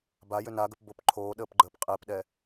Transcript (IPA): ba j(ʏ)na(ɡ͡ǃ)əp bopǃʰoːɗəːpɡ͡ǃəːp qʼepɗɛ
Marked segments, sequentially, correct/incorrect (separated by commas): correct, incorrect